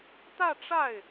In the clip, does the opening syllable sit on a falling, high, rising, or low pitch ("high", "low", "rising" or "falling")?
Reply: falling